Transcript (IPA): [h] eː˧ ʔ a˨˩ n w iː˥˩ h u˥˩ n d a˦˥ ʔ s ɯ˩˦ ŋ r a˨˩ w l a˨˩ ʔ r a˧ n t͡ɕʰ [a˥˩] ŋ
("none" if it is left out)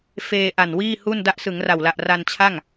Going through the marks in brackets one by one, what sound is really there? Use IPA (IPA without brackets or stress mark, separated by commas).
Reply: f, a˥˩